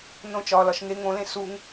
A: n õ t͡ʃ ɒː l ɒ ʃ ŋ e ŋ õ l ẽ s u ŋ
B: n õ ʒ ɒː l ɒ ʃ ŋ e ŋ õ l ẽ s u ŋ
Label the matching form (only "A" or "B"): A